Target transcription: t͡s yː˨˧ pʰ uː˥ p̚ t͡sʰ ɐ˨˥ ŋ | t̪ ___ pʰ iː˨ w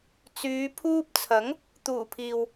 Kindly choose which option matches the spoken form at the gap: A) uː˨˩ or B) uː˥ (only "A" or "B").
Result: A